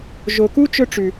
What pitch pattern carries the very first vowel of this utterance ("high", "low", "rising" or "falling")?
low